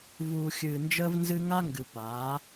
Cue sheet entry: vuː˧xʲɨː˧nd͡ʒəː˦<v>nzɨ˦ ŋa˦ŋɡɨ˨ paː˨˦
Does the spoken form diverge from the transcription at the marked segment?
no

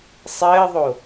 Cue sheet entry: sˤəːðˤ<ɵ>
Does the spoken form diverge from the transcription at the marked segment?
yes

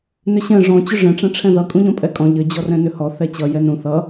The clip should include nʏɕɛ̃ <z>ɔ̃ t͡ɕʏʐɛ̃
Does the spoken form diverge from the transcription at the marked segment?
yes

